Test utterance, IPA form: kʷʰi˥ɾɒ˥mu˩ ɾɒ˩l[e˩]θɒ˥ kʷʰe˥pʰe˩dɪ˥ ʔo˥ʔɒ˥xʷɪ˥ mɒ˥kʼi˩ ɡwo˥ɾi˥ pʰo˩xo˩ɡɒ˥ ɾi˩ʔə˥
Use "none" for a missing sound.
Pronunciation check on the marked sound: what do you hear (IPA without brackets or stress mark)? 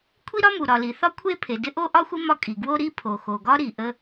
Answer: i˩